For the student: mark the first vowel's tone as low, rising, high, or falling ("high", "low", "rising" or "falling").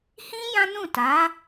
high